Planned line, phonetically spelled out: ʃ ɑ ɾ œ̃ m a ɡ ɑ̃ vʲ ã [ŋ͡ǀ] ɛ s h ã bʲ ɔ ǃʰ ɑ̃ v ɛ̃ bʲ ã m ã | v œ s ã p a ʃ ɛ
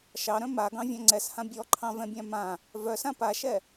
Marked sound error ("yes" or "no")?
no